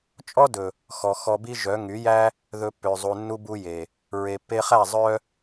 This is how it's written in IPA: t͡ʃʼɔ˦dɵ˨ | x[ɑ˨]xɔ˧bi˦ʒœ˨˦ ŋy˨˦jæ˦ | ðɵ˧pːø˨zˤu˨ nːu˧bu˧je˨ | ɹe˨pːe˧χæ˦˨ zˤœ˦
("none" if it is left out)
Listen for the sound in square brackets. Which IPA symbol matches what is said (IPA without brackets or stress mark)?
ɔ˨